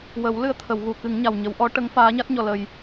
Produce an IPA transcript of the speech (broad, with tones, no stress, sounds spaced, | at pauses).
w ə˨˩˦ w l ɨ˧ ə̯ t̪ʰ ə˨˩˨ w ɣ u˨˩˨ k ɨ˨˩˦ ŋ ɲ a˨˩ w ɲ ə˨˩˦ w ʔ ɔ˧˥ ʈ ə˧˥ ŋ f aː˧˥ ɲ a˦˥ t̚ ɲ ɔ˨˩ l ə˨˩ j